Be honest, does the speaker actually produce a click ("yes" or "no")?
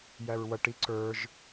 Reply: yes